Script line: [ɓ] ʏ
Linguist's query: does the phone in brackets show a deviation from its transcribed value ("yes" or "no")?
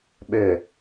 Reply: no